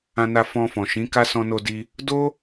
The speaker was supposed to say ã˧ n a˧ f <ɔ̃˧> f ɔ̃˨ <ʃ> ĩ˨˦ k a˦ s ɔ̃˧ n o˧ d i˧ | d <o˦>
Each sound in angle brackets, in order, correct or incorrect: correct, correct, correct

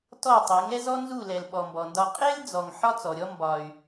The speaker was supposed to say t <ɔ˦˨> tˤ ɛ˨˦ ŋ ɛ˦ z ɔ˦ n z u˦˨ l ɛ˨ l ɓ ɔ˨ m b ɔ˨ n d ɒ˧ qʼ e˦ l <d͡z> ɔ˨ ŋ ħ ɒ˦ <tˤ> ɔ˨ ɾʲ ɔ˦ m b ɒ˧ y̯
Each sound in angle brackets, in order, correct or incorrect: correct, correct, incorrect: t͡s

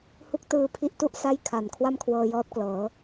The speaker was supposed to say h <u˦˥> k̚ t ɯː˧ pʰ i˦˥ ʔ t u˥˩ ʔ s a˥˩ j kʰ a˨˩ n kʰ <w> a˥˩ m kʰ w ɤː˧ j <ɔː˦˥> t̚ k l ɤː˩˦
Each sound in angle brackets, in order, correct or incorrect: correct, correct, correct

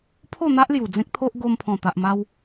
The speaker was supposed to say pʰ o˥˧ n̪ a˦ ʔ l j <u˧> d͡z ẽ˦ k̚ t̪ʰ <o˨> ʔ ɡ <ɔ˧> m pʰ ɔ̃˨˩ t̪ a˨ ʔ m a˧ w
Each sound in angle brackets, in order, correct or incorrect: incorrect: u˨˩, incorrect: o˦, incorrect: o˧

